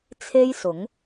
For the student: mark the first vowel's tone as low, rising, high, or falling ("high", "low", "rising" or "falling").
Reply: high